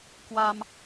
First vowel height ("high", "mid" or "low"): low